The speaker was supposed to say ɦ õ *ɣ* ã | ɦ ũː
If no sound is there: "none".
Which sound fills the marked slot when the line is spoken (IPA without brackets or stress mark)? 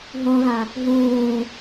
ɣ